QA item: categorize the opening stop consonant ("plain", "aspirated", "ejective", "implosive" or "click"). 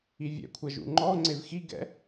aspirated